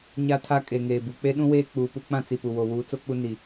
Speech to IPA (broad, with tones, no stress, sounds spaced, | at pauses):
ɲ a˦ tʰ a˦ kʼ e˨ ŋ eː˨ b u˨ k͡p e˦ ɗ ũ˦ w eː˦ k͡p uː˨ p u˦ k͡p ã˦ t͡s i˨ p u˨ w o˨ w uː˨˦ t͡s o˦ k͡p u˦ n i˨